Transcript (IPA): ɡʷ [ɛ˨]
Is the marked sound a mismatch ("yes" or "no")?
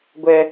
yes